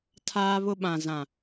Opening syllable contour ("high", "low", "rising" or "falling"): high